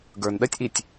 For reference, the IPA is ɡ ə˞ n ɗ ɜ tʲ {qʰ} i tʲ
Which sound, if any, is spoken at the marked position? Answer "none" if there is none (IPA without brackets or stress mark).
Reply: ʔ